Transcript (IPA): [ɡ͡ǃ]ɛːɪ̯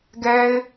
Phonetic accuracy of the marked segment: incorrect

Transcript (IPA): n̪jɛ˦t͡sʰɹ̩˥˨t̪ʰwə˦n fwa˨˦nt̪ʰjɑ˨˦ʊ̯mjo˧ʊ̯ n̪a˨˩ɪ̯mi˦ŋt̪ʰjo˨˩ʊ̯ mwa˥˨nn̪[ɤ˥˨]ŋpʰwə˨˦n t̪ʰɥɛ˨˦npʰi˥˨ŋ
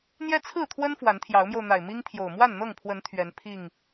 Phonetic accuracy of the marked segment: correct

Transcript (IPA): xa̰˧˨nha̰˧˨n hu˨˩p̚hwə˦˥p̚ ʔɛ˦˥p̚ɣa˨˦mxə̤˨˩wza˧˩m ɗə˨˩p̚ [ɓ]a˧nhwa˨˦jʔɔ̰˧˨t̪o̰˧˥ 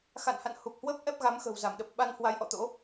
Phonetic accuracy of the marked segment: correct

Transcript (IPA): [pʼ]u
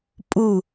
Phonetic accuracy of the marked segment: correct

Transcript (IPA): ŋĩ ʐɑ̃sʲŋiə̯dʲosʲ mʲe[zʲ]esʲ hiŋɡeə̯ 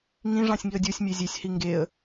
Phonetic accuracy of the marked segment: correct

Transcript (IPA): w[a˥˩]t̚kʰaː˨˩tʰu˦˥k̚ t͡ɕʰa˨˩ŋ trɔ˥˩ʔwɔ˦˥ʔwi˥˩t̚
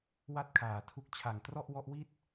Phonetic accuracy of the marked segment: correct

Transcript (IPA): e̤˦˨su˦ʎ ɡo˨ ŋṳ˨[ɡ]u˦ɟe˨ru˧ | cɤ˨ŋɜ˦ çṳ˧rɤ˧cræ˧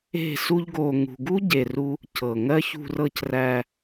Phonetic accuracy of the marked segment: correct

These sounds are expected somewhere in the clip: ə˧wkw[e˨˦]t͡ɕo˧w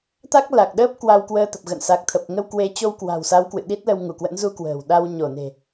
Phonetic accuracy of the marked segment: correct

